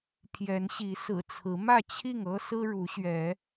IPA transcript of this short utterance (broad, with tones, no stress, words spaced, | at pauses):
pʰjɛ˨˦nɕi˨˦ sɹ̩˨˩t͡sʰɹ̩˨˦ mä˥˨t͡ɕʰi˥˨ŋ ɤ˦ sɹ̩˦ɻu˨˦ɕɥɛ˨˦